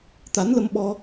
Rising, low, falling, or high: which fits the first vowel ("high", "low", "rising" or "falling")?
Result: rising